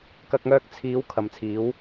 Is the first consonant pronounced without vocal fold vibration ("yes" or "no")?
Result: yes